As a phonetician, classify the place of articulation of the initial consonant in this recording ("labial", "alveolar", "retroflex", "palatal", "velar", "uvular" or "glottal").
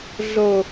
alveolar